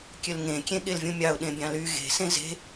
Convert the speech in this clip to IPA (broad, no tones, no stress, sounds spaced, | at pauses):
kʲ ø l ŋ ẽ kʲ ẽ ɠ e l vʲ ũ mʲ ɑ ʊ̯ ɗ ẽ bʲ ɑ̃ l y ɣ e̤ s ẽ z e̤